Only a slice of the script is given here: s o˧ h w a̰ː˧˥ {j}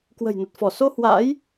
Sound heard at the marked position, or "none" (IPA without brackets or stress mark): j